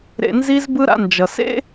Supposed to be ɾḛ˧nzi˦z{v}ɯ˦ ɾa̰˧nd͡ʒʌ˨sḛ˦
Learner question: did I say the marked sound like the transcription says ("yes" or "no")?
no